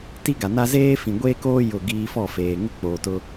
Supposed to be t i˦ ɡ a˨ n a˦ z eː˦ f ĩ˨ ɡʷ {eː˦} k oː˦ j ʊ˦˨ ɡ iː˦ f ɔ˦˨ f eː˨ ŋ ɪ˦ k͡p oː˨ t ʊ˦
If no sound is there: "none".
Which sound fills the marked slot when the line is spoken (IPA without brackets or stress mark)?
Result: eː˦